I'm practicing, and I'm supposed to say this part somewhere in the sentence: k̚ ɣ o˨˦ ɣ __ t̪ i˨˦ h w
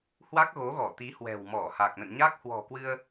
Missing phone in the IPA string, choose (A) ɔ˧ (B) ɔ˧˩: B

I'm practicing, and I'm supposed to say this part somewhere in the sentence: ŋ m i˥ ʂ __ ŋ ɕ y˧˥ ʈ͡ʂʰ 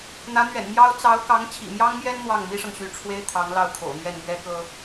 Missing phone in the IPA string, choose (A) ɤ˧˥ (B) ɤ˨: B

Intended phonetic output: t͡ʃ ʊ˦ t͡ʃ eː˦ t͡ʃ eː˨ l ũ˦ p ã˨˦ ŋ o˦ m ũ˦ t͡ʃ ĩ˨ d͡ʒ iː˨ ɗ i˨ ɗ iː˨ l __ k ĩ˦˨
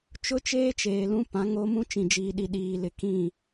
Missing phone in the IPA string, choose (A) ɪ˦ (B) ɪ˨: B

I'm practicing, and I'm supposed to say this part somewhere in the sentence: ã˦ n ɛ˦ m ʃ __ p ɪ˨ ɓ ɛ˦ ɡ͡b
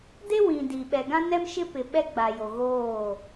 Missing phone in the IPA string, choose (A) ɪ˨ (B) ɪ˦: B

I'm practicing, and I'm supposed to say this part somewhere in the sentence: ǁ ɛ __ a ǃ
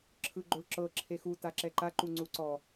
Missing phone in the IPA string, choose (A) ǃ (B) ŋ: A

